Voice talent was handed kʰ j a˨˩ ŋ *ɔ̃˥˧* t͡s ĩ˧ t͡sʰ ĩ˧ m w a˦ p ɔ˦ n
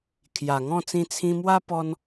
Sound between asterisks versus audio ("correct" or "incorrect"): correct